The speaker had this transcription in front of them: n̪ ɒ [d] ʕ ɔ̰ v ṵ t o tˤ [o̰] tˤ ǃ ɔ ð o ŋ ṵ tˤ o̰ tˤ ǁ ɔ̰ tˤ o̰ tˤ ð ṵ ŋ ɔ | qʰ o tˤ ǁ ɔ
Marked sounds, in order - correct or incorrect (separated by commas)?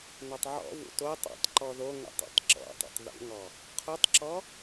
incorrect, incorrect